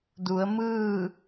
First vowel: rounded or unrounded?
rounded